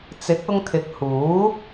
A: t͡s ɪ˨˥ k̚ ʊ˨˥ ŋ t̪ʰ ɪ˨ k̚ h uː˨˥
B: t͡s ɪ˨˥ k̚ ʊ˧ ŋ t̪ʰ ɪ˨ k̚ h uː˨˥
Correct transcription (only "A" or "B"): B